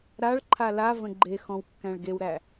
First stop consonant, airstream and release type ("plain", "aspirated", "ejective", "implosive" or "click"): click